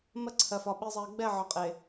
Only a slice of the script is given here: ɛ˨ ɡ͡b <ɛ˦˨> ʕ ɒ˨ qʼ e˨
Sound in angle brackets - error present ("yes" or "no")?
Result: no